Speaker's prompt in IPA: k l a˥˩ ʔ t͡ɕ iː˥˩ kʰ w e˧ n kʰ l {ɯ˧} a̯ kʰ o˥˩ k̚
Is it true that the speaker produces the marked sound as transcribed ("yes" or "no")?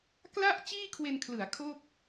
no